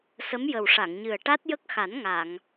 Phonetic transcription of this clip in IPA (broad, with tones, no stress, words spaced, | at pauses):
sə˧˥mjə˨˩w ʂa˨˩˨ŋɲɨ˨˩ə̯ ʈa˦˥t̚jə˦˥k̚xa˨˩˦n ŋa˨˩˨ŋ